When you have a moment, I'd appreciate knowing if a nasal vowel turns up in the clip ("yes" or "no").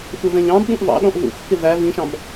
yes